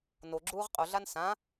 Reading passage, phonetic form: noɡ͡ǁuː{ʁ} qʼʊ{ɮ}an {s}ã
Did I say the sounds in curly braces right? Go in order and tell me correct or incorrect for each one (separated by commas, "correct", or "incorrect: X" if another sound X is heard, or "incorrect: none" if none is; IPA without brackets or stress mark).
correct, correct, correct